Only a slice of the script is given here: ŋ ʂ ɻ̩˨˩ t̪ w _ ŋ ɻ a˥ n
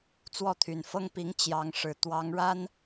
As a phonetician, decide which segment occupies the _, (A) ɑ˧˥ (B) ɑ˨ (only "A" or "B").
A